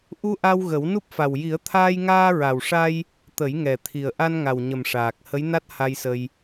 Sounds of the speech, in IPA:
ʔ u˧ ʔ a˧ w ɣ ə˨˩˦ w n u˦˥ p̚ f a˨˩ w j i˨˩˦ ə̯ t̪ʰ aː˧ j ŋ aː˧ ɹ a˨˩ w ʂ a˧ j | t̪ ə˨˩˦ j ŋ ɛ˨˩ t̪ʰ i˨˩ ə̯ ʔ a˧ n ŋ a˨˩ w ɲ ə˨˩ m ʂ aː˨˩ k̚ h ə˧˥ j n a˦˥ t̚ h a˧ j s ə˧ j

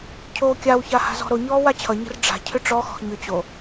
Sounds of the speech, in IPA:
cʰ oː kʲ a w ç a h a̤ z ɔ̤ ɾ o ɲ ɔː w a t͡ɕʰ ʌ ɲ ə̤ r ɖ͡ʐ a̤ cʰ ʏ ʈ͡ʂ ɔ x ɔ̤ x ɲ ʏ t͡ɕ o

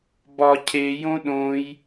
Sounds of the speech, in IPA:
b ɒ cʰ e j õ ɗ õ j

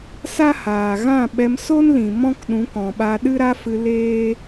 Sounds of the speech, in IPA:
s a˦ h aː˨ ɣ ã˦˨ ɓ ɛ˧ m s o˦ n l ĩ˨ m ɔ̃˦ k ɗ ũ˨˦ k ɔ̃˨ ɓ a˧ ɗ ɨ˦ ɾ a˦ f ɨ˧ l eː˦

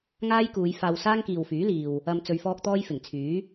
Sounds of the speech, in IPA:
ŋ aː˥ j k uː˨˧ j f aː˧ w s aː˥ ŋ k iː˨ w f yː˨˥ l iː˨ w | ɐ˨ m t͡s ɵ˧ ɥ f ɔː˥ k̚ t̪ ɔː˥ j f ɪ˨˩ ŋ t͡sʰ yː˨˥

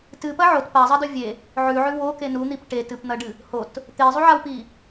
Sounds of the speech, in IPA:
t ɨ p ɐ ʕ o t p a zˤ ɐ d ɵ vʲ e | ʕ ʉ ʕ ʉ w o k e n u n̪ i p ʈ e t ɨ p n̪ ɐ ɖ ɨ | h o t | t̪ e zˤ u ʕ a w p i

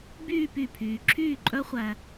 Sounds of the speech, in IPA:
b yː˥˧ p y˥˩ pʰ yː˨ ǁʰ yː˥˩ ǃʼ œ˦˥ χʷ æ˨

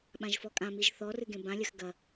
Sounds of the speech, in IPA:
ɓ ã ʒ f ɔ kʼ ã m i ʒ θ ɔ r ɨ ɡ ẽ b ã lʲ ɐ x ɡ ɐ

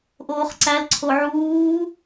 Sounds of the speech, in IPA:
ʔ oː χ ǀ æ l ǀʰ o ʕ uː

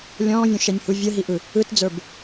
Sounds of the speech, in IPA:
lʲ ɔ̃ː vʲ õ ʃ ɛ nʲ h u vʲ ə ɦ i ʔ ɯ | ɯ t d͡z ə˞ b

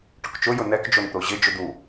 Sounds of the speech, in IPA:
ʈ ʊ k t͡ʃ ʊ j ʊ n ɛ k d͡ʒ o n t̪ o ʑ ɪ d͡ʒ ʊ d̪ u

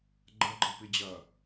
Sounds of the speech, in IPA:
ɡ͡ǃ ɐ ɡ͡ǃ ɐ p i d͡ʑ ɐ

